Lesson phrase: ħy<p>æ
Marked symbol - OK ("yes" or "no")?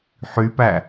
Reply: yes